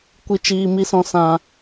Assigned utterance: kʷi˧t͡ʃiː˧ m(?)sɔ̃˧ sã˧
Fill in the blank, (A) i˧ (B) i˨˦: A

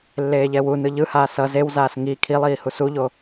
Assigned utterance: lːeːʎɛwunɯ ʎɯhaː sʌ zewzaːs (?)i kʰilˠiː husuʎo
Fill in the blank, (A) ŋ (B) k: A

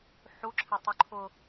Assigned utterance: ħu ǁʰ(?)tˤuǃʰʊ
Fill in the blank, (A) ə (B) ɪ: B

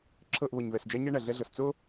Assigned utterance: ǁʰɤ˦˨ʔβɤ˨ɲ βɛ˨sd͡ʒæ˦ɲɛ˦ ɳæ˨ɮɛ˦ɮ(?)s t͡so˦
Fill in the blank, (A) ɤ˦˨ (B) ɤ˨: B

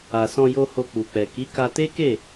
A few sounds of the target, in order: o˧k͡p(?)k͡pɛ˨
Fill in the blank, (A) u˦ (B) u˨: B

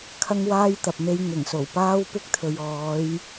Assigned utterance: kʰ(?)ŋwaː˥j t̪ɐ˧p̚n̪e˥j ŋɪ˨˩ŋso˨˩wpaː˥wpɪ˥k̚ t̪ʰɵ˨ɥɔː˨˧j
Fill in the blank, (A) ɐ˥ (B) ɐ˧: A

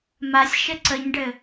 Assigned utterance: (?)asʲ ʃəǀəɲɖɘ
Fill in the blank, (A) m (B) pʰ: A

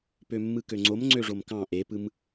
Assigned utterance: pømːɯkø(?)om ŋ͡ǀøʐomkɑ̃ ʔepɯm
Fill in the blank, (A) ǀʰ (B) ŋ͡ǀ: B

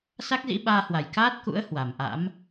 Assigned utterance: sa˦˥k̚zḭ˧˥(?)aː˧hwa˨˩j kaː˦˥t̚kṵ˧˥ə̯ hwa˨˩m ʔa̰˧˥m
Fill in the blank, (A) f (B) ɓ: B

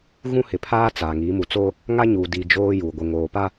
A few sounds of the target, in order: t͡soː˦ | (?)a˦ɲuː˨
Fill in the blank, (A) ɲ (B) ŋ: B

